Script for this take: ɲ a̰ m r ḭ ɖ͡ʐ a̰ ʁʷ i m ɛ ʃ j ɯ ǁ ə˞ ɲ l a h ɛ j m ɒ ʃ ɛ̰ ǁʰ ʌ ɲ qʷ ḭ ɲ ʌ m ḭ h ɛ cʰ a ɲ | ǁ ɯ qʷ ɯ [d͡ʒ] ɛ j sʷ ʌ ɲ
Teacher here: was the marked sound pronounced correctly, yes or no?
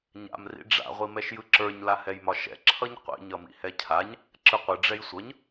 no